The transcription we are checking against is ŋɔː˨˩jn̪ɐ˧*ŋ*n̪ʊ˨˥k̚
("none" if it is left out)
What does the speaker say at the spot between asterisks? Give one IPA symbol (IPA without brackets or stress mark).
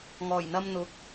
m